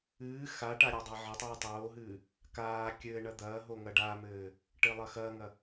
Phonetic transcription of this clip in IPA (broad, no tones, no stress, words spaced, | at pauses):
ɨː xaʈa ɾʲadˤaʕɘtˤɨː tˤoːɦɨː | kaː kʲɘːɳɐ d̪ɐːɦo ŋɐɖaːmɘː | ʈɘlˠɐxɐːŋɐ